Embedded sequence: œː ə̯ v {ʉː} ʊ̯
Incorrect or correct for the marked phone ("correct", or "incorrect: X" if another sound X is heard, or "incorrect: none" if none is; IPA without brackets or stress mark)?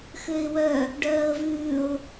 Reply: correct